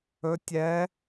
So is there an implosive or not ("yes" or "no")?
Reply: no